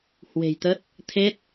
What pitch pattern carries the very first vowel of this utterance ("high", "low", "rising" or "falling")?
low